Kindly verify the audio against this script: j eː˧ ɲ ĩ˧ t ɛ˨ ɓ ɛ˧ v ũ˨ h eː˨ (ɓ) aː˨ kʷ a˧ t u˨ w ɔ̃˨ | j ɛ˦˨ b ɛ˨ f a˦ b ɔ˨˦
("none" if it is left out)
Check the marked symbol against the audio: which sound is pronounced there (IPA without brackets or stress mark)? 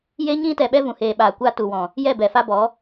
ɓ